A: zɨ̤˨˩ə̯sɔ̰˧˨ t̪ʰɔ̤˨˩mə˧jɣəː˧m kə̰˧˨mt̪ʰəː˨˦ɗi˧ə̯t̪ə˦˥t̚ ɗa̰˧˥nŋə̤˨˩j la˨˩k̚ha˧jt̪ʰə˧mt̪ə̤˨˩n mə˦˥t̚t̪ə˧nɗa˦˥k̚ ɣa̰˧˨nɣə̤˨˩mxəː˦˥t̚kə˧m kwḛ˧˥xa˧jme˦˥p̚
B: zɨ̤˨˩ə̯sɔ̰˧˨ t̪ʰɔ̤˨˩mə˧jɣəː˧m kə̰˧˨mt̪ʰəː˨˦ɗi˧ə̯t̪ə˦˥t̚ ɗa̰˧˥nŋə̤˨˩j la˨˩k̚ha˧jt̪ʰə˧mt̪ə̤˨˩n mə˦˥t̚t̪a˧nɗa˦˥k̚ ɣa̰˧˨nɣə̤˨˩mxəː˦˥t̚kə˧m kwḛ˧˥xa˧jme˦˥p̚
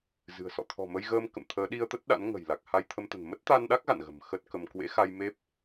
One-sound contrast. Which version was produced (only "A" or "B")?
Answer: B